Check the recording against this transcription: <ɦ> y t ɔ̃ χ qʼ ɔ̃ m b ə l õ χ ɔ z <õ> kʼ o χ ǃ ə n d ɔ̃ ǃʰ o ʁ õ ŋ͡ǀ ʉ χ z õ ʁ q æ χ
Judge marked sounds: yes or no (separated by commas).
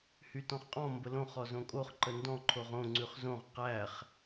no, yes